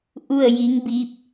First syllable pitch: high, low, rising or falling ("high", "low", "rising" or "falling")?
falling